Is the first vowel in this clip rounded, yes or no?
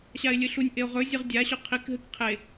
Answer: no